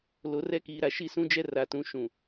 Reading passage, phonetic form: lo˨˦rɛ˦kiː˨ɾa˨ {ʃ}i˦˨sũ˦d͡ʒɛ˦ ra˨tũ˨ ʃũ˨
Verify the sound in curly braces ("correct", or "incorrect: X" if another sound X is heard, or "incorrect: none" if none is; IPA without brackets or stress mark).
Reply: correct